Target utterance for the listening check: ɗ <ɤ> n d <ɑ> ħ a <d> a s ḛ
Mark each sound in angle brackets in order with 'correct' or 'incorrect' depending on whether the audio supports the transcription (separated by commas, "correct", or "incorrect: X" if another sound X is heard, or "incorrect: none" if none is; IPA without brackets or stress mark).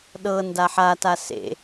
correct, incorrect: a, incorrect: t